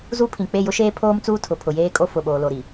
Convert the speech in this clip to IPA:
z u˦ pʰ ĩ˨ k͡p e˦˨ j ʊ˦ ʃ eː˦ pʰ oː˦ m t͡s uː˦ tʰ ʊ˨ pʰ ʊ˨ j eː˦ kʼ o˦ f ʊ˨ ɓ oː˨ l o˨ ɾ i˨

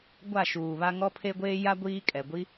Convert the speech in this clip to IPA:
ɡʷ a˦˨ ʃ uː˨ β a˦ ŋ ɔ˦ pʰ e˦ ɡʷ eː˦ j a˦ ɡʷ iː˦ kʼ ɛ˨ ɡʷ i˦

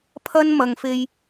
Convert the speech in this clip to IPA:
pʰ ɐ˥ n m ɐ˨ ŋ f e˧ j

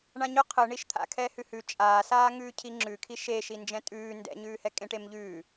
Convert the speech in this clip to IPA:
ɳ ã ɲ ʊ qʰ ɯ ɳ i ʃ t̪ʰ a̰ kʰ ɛ h ʉ h ʉ t͡ʃʼ aː s aː ŋ ʉː cʰ i ŋ͡ǁ ʉ kʰ i ʃ eː ʃ i n d͡ʒ ɛ̃ tʼ ʉː n d ɛ̰ ɲ ʉː h ɛ kʼ ẽ ʈ e m ʎ ʉː

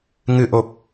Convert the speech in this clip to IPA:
ŋ ɨ˨˩ ʔ o˨˩ p̚

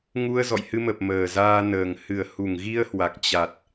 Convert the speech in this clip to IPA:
ŋ u˧ ə̯ z ɔ̰˧˨ j h ɨ˧ m ə˨˩ p̚ m əː˨˩ z aː˧ n əː˨˩ ŋ h ɨ˧˩ ə̯ h u˧˩ ŋ ɣ i˧ ə̯ h w a˨˩ k̚ t͡ɕ a˨˩ t̚

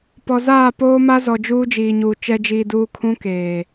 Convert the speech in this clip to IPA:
p ɔ˨ z aː˦˨ p oː˦ m a˦ z ɔ˨ d͡ʒ uː˦ d͡ʒ iː˨ ɲ uː˨ t͡ʃ ɛ˨ d͡ʒ iː˨ d uː˨ kʰ ũ˦ k eː˨

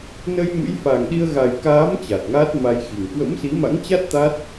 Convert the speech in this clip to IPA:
n ə˧ j m ɨ̰˧˥ j f a˨˩ ŋ ɗ i˧ ə̯ ɣ a˨˩ j k aː˨˦ m t͡ɕ a˨˩ t̚ ŋ aː˦˥ t̚ m a˧ j x i˨˩ ŋ k w ə̰˧˥ m s i˨˦ m a̰˧˥ ŋ t͡ɕ a˦˥ t̚ t̪ a˦˥ t̚

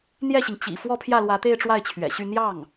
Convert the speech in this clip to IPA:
n̪ j ɛ˥˩ ɕ i˩ ŋ t͡ɕ ḭ˨˩ f w ɔ˥˧ pʰ j ä˥˩ l w ä˧˥ t̪ e˥˧ ɪ̯ ʈ͡ʂ w a˥˩ ɪ̯ t͡ɕʰ ɥ ɛ̰˨˩ ɕ y˥˧ n̪ j ɑ˥˩ ŋ

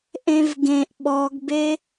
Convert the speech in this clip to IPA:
ʔ ẽ v ɡ ẽ ʔ ɓ ɔ ɡ b e

